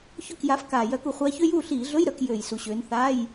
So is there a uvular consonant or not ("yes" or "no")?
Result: yes